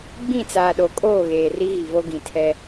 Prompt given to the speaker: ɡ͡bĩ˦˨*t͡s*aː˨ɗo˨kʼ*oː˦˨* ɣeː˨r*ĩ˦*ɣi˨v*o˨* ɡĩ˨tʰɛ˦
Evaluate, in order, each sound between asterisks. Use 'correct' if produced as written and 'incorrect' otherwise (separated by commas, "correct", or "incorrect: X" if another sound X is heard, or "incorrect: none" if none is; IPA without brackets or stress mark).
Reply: correct, correct, incorrect: i˦, incorrect: o˦